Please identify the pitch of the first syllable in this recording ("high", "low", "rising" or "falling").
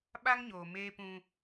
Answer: high